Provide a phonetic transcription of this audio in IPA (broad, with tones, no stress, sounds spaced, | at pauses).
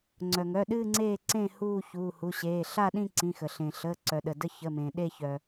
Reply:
ŋ͡ǀ œ˩ ŋ œ˩˧˩ ɗ ɨː˦˨ ŋ͡ǀ eː˦˨ ǀ ẽ˦˨ h uː˦˨ ç uː˩˧˩ h u˩˧˩ ɕ eː˩˧˩ ɬ a˦˨ ɗ ĩ˦˨ ǀ ĩ˩˧˩ x ə˩ ɬ ẽ˩ ɬ əː˩˧˩ ǀ œ˩ ɗ ə˩ d ə˦˨ ç ə˩˧˩ m ẽ˩ ɗ e˦˨ ç œ˩